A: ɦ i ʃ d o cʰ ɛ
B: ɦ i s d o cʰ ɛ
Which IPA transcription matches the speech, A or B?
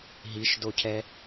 A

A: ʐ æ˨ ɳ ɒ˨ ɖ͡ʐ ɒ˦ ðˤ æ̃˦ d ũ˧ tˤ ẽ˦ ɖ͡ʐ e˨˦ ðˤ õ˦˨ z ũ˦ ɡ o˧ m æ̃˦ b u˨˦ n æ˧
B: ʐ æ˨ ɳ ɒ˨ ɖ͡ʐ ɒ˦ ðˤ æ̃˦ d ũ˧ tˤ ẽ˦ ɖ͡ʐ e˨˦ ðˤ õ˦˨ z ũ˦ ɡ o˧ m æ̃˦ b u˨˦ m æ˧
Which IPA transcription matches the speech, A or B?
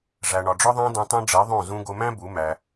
B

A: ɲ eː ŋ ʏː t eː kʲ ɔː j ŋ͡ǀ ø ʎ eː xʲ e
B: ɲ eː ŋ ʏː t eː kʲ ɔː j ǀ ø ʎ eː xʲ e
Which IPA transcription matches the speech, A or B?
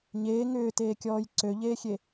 B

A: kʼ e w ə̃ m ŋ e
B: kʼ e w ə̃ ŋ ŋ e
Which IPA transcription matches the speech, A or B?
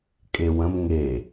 A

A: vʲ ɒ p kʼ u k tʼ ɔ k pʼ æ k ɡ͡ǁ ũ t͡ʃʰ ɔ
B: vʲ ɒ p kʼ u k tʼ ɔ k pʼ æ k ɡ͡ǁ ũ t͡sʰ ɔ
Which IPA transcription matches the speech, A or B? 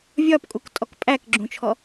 A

